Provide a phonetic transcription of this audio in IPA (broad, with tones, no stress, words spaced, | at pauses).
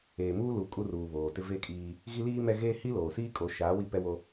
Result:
eː˨muː˦ lu˨ kʼu˦ruː˨βoː˨ tɪ˦ve˦kʼiː˦ | ɣi˦liː˦mɛ˦ɣeː˦ hi˦loː˨siː˦kʼo˨˦ ʃaː˨˦wi˦˨pɛ˦wo˦